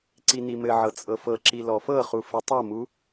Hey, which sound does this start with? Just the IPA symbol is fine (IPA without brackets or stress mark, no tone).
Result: ǀ